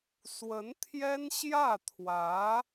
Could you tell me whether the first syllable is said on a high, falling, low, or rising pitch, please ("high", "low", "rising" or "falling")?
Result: rising